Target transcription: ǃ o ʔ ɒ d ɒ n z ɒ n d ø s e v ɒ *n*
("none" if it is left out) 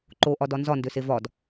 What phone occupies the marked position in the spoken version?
d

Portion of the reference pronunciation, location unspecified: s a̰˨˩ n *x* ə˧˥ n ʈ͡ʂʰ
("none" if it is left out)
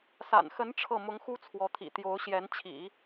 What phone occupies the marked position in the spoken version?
x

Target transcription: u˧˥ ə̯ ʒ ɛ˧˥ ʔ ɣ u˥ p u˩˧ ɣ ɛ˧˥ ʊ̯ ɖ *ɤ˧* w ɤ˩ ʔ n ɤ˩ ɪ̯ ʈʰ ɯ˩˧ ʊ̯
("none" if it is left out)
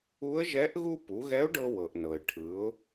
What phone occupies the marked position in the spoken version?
ɤ˧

